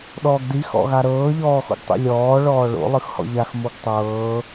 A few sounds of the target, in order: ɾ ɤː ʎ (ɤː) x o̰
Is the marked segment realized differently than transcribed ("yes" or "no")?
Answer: yes